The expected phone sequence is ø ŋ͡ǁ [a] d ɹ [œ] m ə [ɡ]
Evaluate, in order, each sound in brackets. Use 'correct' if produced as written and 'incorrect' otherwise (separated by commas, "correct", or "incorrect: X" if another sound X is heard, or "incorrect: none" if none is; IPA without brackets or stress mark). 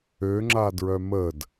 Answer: correct, correct, incorrect: d